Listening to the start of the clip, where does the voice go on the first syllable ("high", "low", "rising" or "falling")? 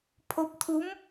rising